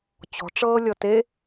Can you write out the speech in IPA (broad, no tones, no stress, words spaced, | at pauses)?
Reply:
t͡ɕɔ̤ʈ͡ʂɤː lʲɔte